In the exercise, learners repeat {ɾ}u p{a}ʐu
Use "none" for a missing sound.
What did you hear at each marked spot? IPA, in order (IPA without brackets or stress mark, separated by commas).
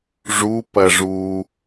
ʐ, ɐ